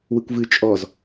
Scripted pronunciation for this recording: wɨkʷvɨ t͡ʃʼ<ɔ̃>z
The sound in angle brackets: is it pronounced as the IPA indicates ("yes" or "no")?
no